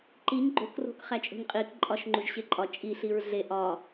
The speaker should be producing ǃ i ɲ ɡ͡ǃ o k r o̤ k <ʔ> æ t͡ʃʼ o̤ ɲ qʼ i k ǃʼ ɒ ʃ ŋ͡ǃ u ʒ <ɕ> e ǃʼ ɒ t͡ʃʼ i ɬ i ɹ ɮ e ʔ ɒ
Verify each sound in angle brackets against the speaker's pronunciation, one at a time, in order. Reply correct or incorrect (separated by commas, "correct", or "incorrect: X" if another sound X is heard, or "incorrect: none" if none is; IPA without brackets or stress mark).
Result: incorrect: χ, correct